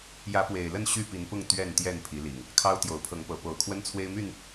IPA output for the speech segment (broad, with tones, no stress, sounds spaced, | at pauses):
j ä˨˦ p w e˨˩ ɪ̯ l ə˥˨ n ɕ y˥˨ p i˨˦ n p ʊ˥˨ ŋ t̪ ɥ ɛ˥˨ n t̪ j ɛ˥˨ n pʰ i˨˦ l i˨˩ ŋ | kʰ ɑ˦ ʊ̯ t̪ j o˨˦ ʊ̯ pʰ ɤ˨˦ ŋ p ɤ˨˦ p o˨˩ ʊ̯ kʰ w ə˦ n t͡sʰ w e˦ ɪ̯ m y˥˨ n